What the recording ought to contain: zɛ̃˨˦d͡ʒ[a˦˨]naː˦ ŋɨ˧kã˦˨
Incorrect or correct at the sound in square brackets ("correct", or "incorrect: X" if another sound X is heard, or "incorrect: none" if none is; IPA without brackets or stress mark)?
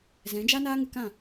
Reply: incorrect: a˦